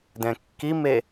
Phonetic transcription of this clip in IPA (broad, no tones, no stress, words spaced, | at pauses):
dɛ̃kːime